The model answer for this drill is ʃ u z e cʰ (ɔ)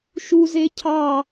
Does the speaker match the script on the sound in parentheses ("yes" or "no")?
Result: no